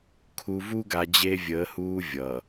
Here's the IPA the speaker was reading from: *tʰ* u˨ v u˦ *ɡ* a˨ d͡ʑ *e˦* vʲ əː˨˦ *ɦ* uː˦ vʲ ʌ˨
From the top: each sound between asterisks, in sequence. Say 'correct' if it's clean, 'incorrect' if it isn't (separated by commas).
incorrect, correct, correct, incorrect